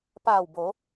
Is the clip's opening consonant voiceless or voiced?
voiceless